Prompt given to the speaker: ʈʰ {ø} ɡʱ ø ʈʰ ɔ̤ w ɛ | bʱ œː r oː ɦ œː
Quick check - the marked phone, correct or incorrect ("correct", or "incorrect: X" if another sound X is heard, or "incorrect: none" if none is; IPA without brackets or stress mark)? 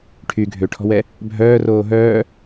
incorrect: y